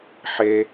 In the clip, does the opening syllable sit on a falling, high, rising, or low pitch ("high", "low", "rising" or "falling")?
low